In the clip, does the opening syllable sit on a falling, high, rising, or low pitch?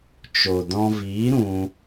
low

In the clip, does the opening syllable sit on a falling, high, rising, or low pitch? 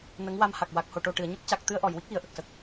rising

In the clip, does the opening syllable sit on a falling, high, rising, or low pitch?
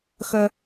low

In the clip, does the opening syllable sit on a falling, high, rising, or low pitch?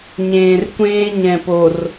low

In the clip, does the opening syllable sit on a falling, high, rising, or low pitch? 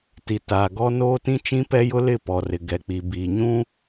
low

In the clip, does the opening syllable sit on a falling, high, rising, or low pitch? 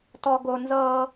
high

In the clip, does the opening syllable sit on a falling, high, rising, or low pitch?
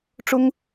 high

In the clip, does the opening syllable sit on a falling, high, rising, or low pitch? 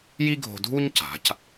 high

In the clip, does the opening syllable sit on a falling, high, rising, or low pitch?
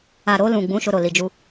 low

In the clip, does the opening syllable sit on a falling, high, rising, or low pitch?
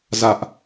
high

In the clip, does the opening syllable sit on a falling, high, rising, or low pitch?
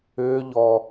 high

